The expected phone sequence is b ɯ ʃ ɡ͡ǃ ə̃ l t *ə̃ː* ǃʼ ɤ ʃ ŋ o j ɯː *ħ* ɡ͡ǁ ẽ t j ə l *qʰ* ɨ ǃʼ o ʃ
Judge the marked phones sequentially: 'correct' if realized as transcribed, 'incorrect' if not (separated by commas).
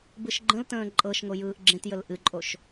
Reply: correct, incorrect, incorrect